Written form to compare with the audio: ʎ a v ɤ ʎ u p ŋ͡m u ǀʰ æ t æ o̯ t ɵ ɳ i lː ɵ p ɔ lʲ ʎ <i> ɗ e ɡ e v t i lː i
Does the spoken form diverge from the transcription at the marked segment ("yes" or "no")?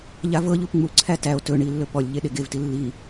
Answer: yes